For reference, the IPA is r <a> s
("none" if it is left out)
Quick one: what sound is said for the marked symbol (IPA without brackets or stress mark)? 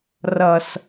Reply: ʌ